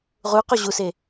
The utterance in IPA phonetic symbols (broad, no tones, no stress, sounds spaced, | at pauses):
ʁ u q o ʑ u s e